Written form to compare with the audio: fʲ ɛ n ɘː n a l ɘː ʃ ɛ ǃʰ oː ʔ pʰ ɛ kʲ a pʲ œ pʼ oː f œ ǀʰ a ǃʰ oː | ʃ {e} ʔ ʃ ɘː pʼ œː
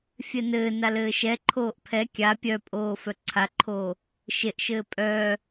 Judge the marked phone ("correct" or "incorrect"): correct